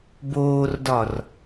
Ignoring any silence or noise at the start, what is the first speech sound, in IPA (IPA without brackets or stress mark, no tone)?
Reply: b